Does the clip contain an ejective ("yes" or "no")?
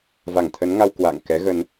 no